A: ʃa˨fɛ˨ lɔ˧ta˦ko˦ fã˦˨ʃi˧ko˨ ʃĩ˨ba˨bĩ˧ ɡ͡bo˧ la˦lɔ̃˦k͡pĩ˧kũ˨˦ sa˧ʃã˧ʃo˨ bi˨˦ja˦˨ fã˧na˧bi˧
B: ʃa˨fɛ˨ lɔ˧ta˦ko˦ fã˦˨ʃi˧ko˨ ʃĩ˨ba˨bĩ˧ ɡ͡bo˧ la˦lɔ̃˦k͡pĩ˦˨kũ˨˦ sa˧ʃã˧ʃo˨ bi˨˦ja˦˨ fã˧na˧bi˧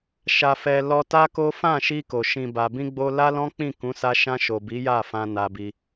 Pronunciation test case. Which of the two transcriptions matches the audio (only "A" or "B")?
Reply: B